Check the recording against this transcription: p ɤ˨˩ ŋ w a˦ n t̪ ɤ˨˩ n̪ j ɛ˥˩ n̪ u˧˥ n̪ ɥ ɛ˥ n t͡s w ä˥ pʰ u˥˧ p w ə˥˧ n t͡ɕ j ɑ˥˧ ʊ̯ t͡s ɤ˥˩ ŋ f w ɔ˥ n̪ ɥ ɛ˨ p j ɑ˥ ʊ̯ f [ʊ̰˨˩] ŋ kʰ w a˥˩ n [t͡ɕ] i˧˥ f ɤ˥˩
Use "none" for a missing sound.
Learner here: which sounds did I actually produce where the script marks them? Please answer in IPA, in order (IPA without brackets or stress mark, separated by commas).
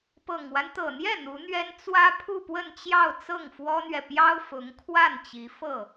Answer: ʊ˧˥, t͡ɕ